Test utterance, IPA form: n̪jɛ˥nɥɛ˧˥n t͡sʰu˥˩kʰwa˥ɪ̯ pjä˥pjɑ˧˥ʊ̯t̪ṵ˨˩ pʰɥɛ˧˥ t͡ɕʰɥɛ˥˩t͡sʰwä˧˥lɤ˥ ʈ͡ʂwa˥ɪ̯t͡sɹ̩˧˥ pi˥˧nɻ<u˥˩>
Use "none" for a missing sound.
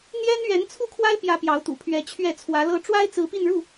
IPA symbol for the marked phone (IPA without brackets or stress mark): u˥˩